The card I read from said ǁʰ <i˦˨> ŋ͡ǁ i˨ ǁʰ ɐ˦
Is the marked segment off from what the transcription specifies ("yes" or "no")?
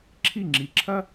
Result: no